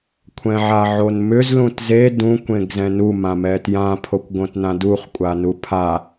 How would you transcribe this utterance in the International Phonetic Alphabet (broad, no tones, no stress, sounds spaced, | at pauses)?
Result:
kʷʰ ɛ̃ ʕ a ʕ o n m ʏ z l ũ t z e d ũ kʷ ẽ ɡ z ɛ̃ n u m ã m ɛ t j ã pʰ o kʷ ɡ õ t n ã d u χ kʷʼ a n u pʰ a